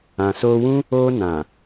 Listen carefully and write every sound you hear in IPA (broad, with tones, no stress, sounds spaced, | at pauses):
ã˨ s o˧ w ũ˦ | o˧ n ã˨